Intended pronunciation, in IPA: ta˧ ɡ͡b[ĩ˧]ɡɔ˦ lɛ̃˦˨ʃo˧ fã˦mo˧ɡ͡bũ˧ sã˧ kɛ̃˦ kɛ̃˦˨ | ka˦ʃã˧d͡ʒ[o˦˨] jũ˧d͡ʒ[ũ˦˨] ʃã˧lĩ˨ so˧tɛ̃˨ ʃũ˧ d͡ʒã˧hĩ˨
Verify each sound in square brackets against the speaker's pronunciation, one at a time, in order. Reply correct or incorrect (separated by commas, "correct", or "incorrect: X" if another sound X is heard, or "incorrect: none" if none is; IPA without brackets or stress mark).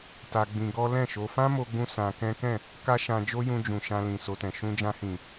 correct, incorrect: o˦, incorrect: ũ˨